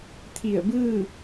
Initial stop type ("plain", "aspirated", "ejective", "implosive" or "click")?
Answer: aspirated